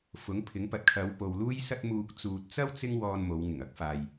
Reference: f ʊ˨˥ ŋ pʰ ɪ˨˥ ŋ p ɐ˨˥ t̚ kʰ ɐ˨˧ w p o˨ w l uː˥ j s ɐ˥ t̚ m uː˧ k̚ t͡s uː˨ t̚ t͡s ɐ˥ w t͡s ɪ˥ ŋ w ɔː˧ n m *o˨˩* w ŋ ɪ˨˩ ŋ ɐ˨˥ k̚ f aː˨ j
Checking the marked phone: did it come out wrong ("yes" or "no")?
yes